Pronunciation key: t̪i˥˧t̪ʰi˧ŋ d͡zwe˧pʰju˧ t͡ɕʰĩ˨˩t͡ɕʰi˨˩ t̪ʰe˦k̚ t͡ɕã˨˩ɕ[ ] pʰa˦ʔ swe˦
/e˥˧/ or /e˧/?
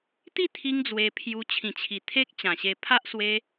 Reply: e˧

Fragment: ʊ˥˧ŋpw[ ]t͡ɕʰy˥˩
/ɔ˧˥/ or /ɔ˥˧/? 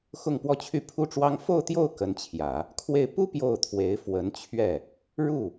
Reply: ɔ˥˧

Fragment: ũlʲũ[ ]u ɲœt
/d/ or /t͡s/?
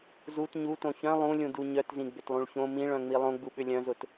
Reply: d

